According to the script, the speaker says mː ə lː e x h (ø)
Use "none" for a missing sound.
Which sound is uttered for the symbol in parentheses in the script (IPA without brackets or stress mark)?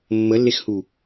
u